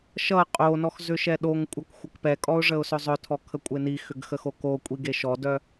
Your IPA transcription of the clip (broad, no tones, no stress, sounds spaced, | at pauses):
ʃ ʌ qʼ o n ɔ x z ʏ ʃ ɛ ɗ o ŋ kʷʼ ʌ k xʷ ə k p ɛ kʼ ɔ ʊ̯ ʐ ə ʊ̯ s œ zˤ œ tʰ ɔ kʰ ə kʷʼ ə ɪ̯ n i x ʏ ɡ x ə x o k o kʷʼ i ɡ e ʃ ɔ d œ